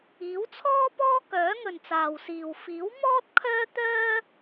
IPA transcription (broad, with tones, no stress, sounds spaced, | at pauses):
iː˨˥ w t͡sʰ ɔː˥ p ɔː˥ k œː˨˥ ŋ ɵ˨ n t͡s aː˨ w s iː˨ w f iː˨˥ w m ɔː˥ t̚ kʰ œː˥ t̪ œː˥